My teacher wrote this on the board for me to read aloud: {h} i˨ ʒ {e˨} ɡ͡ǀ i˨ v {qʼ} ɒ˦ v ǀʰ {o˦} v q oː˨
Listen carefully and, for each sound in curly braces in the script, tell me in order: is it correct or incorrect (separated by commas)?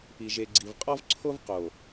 incorrect, correct, correct, correct